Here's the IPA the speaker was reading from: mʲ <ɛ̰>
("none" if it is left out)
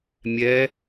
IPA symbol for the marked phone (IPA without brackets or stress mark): ɛ